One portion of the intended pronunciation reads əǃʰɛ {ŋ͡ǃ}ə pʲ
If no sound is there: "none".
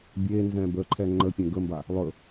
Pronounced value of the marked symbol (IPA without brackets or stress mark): ŋ͡ǃ